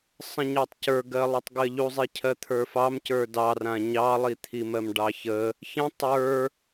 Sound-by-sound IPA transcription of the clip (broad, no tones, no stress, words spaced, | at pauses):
sˤə̃ɲɑtˤcə˞ɡɜ lˠutˤɡɜʎuzˤi cʰɜt̪ʰə˞fɑmcə˞ dɑrã ɲɑlˠit̪ʰimɜm ɖɑçə | çə̃ tˤə˞